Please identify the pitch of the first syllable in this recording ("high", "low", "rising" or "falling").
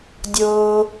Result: low